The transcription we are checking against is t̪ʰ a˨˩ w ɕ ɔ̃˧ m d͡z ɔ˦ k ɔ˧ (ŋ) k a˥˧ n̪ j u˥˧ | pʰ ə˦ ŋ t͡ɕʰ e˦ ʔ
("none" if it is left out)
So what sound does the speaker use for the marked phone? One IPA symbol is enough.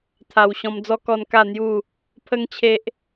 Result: n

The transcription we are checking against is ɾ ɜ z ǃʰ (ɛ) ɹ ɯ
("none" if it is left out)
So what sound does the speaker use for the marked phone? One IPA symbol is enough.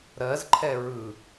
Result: ɛ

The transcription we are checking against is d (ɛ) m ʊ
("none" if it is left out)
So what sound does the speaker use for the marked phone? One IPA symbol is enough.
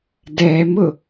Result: ɛ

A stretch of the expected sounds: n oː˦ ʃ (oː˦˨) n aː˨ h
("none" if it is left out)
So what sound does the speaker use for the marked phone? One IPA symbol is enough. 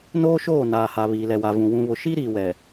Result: oː˦˨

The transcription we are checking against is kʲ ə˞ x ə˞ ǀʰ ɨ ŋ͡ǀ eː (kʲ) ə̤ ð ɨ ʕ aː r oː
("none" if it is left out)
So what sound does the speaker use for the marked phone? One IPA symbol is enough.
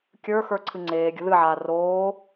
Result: ɡʲ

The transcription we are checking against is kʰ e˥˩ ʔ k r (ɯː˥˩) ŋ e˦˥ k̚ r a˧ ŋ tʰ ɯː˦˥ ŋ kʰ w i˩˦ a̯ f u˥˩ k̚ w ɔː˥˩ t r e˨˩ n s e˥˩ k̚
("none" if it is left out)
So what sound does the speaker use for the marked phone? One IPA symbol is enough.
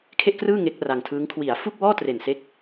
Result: ɯː˥˩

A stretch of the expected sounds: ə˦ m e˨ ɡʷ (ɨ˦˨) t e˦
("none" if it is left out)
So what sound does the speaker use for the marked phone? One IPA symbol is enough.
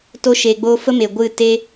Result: ɨ˦˨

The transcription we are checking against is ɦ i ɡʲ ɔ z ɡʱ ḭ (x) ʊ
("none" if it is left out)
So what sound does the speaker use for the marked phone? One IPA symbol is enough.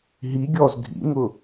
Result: ŋ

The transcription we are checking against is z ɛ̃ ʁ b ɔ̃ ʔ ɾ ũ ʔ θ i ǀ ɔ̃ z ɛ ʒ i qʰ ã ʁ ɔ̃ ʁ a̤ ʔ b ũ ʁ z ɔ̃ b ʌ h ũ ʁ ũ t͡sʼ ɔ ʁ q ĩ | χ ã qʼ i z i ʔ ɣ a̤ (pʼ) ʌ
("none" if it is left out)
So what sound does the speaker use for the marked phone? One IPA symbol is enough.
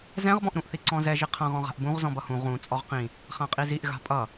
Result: pʼ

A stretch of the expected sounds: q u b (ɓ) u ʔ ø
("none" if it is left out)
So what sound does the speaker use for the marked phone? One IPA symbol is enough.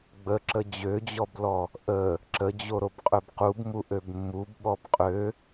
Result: m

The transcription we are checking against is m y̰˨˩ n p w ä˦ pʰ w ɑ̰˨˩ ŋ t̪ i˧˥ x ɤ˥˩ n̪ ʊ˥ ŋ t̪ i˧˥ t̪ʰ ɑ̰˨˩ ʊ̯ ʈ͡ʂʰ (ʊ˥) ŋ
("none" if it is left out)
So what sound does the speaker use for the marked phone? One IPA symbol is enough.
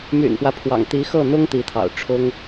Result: ʊ˥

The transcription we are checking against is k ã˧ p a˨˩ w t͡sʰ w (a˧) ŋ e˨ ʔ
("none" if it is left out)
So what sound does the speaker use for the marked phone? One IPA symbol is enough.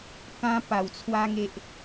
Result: a˧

